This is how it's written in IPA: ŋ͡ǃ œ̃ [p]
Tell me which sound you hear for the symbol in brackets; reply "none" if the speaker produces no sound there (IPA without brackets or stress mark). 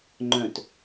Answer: t